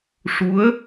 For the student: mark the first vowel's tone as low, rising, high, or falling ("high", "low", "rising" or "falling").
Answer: rising